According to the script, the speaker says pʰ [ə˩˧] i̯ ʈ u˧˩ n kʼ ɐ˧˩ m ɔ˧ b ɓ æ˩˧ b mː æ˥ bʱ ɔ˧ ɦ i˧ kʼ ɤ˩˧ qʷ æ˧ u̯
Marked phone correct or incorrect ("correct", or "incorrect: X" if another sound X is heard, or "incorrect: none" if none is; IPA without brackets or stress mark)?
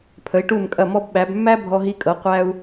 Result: correct